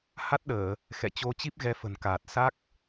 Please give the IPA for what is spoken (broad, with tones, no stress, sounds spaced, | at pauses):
h a˦˥ t̚ ɗ əː˧˩˨ | x ɛ̰˧˨ t͡ɕ o˧ t͡ɕ i˦˥ p̚ ɣ ɛ˧ f ə̤˨˩ n k aː˨˩ t̚ s a˦˥ k̚